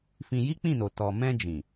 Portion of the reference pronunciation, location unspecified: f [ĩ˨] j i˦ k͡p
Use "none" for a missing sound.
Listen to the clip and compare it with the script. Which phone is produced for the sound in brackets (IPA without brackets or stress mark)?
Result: ĩ˧